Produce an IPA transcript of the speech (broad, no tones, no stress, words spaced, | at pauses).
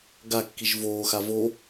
ɡakːiʒ voːxa vo